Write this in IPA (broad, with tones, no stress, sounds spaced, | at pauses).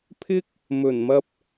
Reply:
pʰ ɪ˥ k̚ | m ɵ˨˩ n m ɐ˧ p̚